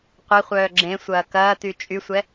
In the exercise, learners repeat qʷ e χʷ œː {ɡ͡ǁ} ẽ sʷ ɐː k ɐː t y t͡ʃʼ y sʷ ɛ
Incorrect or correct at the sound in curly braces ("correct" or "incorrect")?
correct